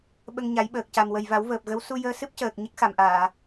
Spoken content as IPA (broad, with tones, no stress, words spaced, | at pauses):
ɓə˧ŋɲa˨˩˦jɓəː˨˩k̚ ca˨˩m wə˨˩jva˨˩˦wvəː˨˩p̚ɣə˧˥w su˧ jəː˧sɨ˦˥p̚cəː˨˩k̚ ɲə˦˥k̚xa˨˩˨mʔaː˨˩˨